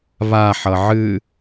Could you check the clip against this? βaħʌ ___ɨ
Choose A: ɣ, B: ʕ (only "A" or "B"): B